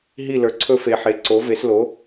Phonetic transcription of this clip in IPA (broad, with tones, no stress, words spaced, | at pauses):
ɦi˥˩lə˞˩˥ǀʰɵ˥˧ fe˨ħe˩˥ ǀo˩˥ve˩˥slo˩˥